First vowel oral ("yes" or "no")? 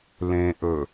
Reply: no